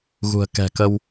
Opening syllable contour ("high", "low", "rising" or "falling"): low